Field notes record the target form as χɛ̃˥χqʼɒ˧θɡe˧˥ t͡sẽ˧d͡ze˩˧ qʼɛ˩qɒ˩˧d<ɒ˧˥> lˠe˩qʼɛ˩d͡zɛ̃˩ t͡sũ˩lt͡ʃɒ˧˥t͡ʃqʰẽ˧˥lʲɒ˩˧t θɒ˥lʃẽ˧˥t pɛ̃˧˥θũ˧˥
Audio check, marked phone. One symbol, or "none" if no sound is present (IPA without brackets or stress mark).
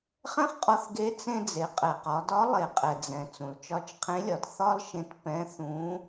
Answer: ɒ˧˥